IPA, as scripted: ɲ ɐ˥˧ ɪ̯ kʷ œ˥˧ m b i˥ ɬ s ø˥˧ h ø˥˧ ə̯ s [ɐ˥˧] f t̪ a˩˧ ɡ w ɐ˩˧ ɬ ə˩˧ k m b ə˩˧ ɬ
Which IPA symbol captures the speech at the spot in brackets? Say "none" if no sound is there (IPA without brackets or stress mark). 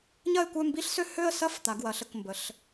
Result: ɐ˥˧